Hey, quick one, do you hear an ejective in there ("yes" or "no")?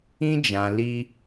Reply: no